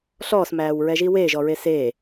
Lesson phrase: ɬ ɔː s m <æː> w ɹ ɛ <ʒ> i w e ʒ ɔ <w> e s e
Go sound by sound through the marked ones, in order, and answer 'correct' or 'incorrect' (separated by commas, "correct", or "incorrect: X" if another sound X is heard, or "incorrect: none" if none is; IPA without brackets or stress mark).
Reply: correct, correct, incorrect: ɹ